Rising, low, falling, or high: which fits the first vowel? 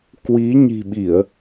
rising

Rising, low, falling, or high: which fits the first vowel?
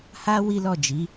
high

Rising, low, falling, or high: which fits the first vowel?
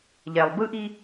low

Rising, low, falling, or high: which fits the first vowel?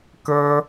high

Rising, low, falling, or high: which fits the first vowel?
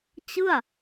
falling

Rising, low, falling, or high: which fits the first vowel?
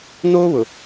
high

